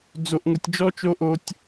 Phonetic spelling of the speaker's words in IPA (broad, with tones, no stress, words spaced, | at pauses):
d͡zo˦ʔŋʊ˦tʲ d͡ʒɔ˦t͡ʃo˦ʔo˦tʲ